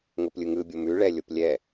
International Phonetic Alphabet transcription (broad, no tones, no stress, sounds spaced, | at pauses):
ŋ o p lʲ ɯ ŋ ɯ bʲ o m ʉ ɭ ɛ lʲ o p lʲ ɛ